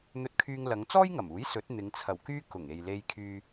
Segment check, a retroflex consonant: absent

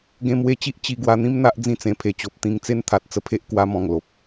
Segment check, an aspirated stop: present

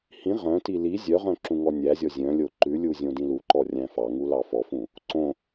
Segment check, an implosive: absent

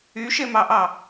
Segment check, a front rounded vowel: present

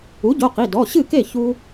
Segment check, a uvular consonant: present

